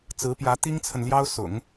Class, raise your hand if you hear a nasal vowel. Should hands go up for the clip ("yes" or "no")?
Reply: no